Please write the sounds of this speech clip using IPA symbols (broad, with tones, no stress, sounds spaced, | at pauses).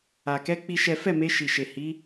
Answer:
a˨ k ɛ˧ k͡p i˦ ʃ ɛ˦ f ɛ˦˨ m e˧ ʃ i˨ ʃ e˨ h i˨˦